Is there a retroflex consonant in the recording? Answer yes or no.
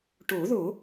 yes